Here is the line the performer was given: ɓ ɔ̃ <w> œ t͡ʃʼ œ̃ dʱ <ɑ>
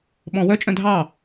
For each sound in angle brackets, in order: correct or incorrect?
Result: correct, correct

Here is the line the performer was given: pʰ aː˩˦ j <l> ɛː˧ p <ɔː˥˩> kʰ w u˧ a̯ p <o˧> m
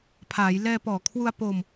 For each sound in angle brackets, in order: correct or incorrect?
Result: correct, incorrect: ɔː˨˩, correct

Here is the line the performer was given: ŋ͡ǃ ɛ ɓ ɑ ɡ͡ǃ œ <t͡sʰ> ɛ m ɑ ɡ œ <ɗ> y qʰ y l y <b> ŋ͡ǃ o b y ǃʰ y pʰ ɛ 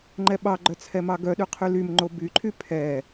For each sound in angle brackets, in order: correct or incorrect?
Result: correct, correct, incorrect: m

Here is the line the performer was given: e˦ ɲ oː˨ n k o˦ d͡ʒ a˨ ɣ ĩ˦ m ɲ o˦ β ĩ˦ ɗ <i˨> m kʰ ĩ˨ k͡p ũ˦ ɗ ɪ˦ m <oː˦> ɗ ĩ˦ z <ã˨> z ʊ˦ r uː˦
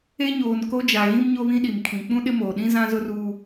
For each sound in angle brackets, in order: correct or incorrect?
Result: correct, incorrect: oː˨, incorrect: ã˦

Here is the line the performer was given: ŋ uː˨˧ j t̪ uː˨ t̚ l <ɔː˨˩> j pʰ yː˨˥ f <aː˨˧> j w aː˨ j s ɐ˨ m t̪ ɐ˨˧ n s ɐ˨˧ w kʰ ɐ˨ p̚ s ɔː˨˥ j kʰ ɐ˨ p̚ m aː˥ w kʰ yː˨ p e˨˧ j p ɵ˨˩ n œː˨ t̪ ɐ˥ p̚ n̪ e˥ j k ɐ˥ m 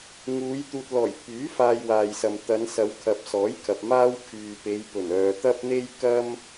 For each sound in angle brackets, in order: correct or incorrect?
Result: correct, incorrect: aː˧

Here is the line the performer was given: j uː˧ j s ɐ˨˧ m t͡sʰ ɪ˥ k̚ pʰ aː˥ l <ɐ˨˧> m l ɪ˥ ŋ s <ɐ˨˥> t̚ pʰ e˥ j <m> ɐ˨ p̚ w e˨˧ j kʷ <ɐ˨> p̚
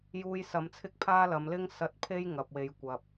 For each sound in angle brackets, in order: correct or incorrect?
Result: correct, incorrect: ɐ˧, incorrect: ŋ, correct

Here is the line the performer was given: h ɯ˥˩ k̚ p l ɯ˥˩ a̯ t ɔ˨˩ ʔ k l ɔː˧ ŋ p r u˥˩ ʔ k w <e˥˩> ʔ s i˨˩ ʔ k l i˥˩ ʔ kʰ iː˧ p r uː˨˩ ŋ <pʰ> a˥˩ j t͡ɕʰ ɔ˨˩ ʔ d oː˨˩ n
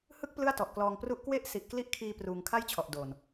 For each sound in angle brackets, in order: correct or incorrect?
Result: incorrect: e˦˥, incorrect: kʰ

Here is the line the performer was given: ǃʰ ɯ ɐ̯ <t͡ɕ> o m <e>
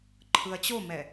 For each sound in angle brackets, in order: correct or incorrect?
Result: correct, incorrect: ɛ

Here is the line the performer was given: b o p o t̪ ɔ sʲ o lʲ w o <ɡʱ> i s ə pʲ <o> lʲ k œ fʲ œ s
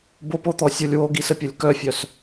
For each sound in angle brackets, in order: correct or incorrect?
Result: incorrect: ɡ, correct

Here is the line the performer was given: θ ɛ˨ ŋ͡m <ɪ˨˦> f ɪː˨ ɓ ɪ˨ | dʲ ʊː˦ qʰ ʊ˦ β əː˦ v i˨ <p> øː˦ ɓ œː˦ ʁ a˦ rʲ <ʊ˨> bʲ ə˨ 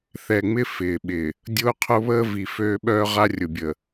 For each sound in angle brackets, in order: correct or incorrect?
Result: incorrect: ɪ˦, incorrect: f, correct

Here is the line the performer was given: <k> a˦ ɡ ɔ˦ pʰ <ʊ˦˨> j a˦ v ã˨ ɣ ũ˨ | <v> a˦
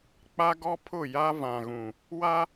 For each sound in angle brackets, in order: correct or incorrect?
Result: incorrect: k͡p, correct, incorrect: w

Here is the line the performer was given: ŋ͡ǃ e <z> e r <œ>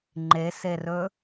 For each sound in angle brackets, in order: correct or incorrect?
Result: incorrect: s, incorrect: ɵ

